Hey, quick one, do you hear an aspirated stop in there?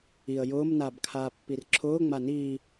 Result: yes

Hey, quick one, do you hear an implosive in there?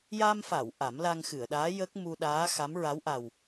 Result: yes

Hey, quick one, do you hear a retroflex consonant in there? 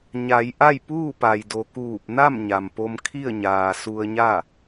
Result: no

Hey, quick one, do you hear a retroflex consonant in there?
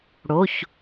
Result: yes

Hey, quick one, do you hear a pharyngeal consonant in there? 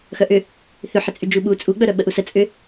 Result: yes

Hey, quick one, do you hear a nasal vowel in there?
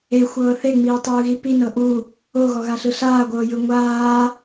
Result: no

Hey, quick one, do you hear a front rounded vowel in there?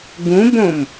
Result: no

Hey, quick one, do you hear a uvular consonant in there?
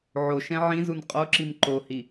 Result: yes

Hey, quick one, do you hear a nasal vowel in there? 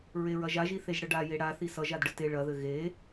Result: no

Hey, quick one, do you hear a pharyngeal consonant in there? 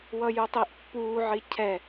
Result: yes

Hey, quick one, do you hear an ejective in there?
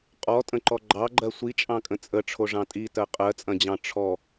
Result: yes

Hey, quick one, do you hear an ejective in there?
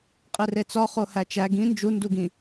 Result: yes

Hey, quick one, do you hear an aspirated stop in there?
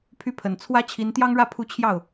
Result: yes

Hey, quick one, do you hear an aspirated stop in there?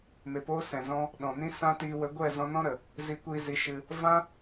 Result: no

